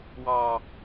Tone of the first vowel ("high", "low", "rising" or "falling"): high